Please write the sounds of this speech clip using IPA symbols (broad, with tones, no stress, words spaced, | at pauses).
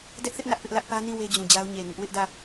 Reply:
dɛ˦ʔθɪ˦ʔ nä˦ʔpɪ˦ʔlä˦ʔ pä˦nĩ˦˨ we˦d͡ʑũ˨d͡ʑa˦ʊ̯ ɲe˨ ŋɪ˦ʔ wɪ˦ʔdä˦˨